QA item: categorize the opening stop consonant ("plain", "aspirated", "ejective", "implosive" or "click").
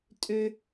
ejective